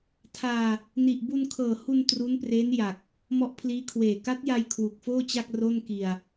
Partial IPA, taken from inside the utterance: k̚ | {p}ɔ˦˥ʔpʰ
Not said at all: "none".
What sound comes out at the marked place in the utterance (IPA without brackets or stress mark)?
m